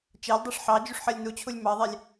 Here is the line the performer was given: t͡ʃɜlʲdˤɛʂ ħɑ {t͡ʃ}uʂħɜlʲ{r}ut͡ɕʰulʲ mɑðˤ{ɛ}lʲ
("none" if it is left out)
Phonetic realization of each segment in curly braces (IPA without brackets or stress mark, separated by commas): d͡ʒ, n, ɛ